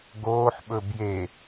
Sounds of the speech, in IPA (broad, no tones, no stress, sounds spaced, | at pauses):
ɡ oː ħ ɓ ɵ b j e